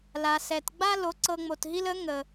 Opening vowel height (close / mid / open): open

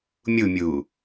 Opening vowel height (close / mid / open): close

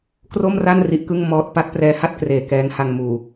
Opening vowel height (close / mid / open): mid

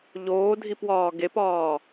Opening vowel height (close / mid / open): mid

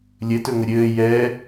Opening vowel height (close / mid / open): mid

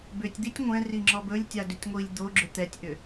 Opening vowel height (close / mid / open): close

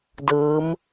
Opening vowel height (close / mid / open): close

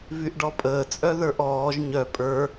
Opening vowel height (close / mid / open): close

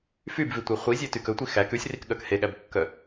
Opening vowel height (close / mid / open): close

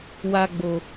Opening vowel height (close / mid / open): open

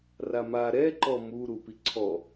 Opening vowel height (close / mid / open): open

